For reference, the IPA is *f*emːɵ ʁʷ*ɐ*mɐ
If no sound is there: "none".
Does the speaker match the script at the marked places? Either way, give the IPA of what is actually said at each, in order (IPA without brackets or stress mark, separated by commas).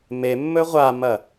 m, a